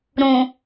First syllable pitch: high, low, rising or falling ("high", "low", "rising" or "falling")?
low